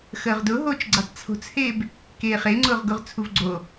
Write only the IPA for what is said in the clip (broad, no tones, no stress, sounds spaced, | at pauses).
x əː ʁ d ʊ ɦ oː t͡ʃ ɡ͡ǀ e tˤ t͡sʰ o̤ t͡s h eː b | k eː χ e ŋ͡ǀ ʊː ʁ ɡ ʊ ʁ t͡sʰ u v ɡ͡ǀ o